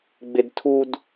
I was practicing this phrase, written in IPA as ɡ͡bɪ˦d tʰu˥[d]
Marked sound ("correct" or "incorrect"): correct